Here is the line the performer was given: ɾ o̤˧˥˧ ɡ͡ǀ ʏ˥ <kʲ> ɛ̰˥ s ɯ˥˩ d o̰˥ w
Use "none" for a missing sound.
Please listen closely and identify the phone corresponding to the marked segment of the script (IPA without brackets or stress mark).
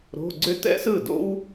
t